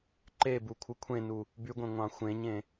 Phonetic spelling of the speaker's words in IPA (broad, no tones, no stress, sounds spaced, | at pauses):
ǃ e b u kʷʰ ɯ kʷʰ ẽ n u | b y ɡʷ ẽ ŋʷ ɑ̃ xʷ ẽ ɲ ẽ